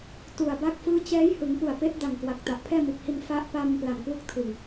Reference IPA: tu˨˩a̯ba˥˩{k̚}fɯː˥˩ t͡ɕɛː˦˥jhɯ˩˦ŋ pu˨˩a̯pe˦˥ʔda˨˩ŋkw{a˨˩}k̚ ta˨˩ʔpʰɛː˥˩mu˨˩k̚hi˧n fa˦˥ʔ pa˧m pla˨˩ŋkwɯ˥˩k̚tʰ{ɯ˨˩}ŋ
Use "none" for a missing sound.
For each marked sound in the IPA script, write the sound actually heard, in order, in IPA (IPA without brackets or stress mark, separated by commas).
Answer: k̚, a˨˩, ɯ˨˩